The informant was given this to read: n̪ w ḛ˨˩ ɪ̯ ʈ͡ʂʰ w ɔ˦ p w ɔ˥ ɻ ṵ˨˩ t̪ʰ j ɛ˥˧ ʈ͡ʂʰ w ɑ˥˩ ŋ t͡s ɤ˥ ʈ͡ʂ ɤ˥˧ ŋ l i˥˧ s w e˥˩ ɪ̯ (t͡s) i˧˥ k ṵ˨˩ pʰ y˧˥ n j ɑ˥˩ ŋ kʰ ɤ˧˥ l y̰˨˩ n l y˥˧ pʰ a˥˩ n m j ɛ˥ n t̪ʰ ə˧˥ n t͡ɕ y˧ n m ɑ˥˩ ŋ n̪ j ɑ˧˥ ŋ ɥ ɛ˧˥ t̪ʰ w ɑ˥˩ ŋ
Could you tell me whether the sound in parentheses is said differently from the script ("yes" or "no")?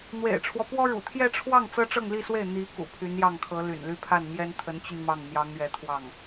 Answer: yes